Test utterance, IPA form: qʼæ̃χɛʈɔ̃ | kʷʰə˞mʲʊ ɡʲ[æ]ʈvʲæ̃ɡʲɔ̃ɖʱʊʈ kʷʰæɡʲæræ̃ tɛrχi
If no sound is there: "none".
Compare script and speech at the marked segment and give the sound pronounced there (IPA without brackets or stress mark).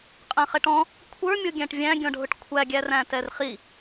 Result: æ̃